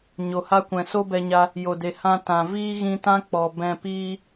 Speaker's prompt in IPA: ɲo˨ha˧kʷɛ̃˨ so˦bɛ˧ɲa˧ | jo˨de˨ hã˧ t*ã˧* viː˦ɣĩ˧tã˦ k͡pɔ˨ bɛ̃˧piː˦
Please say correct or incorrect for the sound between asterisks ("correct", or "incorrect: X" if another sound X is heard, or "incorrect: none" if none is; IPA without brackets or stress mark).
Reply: incorrect: ã˨